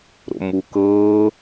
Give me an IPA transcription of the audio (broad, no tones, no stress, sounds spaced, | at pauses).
ɾ o̰ m u k ɤː